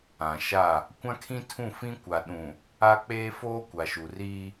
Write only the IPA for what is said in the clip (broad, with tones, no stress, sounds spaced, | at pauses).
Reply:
ã˨ ʃ a˦˨ | kʷ ã˦ kʰ ĩ˦ tʰ ũ˦˨ f ĩ˦ kʷ a˨ ɗ ũ˨ | a˦ k͡p eː˦ f oː˦ kʷ a˨ ʃ u˨ r iː˦